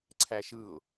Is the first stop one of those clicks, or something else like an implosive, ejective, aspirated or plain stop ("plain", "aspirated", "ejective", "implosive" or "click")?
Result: click